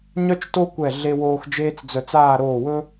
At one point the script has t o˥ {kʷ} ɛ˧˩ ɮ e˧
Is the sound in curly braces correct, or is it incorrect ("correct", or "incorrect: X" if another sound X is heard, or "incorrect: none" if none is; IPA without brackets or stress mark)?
correct